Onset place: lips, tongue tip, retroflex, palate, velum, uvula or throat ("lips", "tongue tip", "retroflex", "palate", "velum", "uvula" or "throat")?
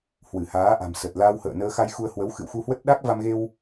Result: throat